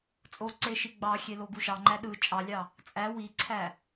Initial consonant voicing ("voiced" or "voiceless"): voiceless